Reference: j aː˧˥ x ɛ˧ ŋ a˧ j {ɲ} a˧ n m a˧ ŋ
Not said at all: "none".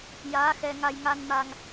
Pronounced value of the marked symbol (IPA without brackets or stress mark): ŋ